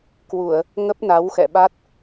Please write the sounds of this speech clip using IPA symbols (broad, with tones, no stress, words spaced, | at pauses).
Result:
kwu˧˩˨ə̯ | ŋə˦˥p̚na˨˦w xɛ̰˧˨ɓa˦˥t̚